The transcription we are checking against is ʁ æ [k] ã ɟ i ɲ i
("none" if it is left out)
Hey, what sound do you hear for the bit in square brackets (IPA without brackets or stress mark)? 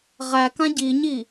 k